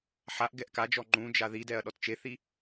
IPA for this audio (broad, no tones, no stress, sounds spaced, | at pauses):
ħ a ʔ ɡ ɛ ʔ k a d͡ʒ ɔ ŋ͡ǃ ũ d͡ʒ a ð i d ɛ ɐ̯ ɗ ɔ t t͡ʃ e θ i